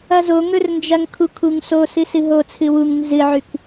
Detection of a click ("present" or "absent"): absent